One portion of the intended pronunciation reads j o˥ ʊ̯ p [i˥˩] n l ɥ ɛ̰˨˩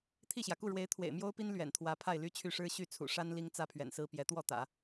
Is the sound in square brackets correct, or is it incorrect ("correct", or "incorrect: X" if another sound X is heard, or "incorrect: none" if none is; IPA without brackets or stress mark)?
incorrect: i˥